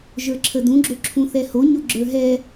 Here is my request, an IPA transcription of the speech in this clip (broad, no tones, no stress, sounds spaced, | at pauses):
ʒ ə˞ ǁʰ ə d ũ ɡ͡ǁ o ǁʰ ũ θ ɛ h o ɲ o ɡ͡ǁ ə˞ ɦ ɛ